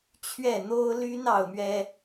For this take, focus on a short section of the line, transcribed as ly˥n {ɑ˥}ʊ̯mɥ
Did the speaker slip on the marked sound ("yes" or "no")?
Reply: no